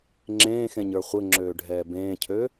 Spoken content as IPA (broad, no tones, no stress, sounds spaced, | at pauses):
ŋ͡ǁ ẽː x ẽ ɲ ə˞ χʷ ɘ ŋ͡ǁ øː ɖʱ ɛː b ẽː cʰ ø